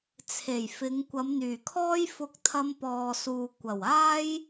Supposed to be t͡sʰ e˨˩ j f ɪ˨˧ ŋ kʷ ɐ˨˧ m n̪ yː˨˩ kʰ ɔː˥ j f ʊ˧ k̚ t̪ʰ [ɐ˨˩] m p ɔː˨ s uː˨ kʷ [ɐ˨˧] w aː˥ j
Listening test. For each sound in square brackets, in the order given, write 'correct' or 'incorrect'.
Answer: incorrect: ɐ˧, incorrect: ɐ˨˩

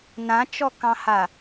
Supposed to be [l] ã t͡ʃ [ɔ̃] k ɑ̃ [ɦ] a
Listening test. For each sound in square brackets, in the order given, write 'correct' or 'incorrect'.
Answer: incorrect: n, incorrect: ɔ, incorrect: h

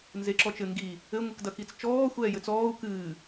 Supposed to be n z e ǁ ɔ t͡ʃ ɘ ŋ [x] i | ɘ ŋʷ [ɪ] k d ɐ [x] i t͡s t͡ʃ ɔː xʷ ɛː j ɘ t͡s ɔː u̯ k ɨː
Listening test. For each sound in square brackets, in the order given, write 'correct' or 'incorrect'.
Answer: incorrect: ɡ, incorrect: ɨ, incorrect: k

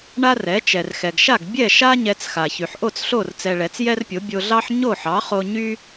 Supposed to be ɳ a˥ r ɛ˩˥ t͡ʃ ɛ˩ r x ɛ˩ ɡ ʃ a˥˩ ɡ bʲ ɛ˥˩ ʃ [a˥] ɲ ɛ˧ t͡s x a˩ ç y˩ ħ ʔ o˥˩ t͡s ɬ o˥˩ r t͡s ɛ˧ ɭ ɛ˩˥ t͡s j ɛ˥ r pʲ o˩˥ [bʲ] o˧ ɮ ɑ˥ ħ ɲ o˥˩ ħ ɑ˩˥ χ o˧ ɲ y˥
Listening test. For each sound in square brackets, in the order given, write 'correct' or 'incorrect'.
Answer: correct, correct

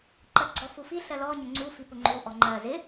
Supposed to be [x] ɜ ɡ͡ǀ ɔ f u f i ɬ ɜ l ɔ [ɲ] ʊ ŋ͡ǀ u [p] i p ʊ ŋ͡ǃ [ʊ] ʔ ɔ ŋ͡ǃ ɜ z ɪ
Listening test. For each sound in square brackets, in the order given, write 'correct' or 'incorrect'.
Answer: incorrect: ǃ, correct, incorrect: f, incorrect: u

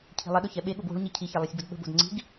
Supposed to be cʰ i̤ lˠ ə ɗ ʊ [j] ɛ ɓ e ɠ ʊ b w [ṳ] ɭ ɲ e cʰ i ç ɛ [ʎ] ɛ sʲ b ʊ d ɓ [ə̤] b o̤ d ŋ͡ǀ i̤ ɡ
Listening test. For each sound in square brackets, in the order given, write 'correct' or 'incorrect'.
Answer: incorrect: ç, incorrect: o̤, incorrect: lˠ, correct

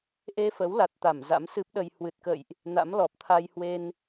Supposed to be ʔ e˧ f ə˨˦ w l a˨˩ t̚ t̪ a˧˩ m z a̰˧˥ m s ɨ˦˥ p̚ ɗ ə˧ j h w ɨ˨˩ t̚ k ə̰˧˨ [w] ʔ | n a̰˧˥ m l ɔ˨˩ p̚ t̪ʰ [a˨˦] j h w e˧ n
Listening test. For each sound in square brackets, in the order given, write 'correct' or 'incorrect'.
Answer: incorrect: j, incorrect: a˧

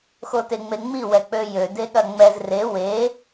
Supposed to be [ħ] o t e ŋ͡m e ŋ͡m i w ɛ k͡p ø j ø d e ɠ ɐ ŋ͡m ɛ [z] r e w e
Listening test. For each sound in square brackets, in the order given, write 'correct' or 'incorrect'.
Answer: incorrect: x, correct

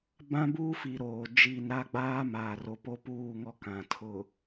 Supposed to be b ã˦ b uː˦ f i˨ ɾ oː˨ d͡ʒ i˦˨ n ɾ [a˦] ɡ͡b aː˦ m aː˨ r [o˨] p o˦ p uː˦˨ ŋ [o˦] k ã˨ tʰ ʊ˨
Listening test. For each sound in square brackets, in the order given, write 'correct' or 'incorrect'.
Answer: correct, correct, incorrect: ɔ˦

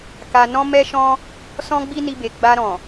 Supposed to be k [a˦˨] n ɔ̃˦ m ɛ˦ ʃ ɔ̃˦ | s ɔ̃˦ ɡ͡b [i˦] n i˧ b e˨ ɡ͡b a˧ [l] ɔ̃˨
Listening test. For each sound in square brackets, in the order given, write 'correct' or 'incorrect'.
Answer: incorrect: a˧, correct, incorrect: ɾ

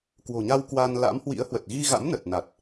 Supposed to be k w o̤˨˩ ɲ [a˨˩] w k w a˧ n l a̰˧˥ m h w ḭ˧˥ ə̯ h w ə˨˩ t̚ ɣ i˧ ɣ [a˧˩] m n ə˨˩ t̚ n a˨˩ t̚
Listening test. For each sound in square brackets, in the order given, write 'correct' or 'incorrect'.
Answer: incorrect: a˧, incorrect: a̰˧˥

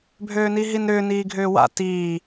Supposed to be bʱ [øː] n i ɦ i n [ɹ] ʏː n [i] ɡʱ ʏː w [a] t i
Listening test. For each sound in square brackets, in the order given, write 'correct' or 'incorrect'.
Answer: correct, incorrect: ɾ, incorrect: iː, incorrect: a̰

